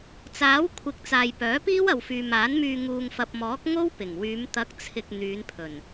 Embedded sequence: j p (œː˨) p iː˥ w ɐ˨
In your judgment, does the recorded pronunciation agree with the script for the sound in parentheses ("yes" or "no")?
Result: no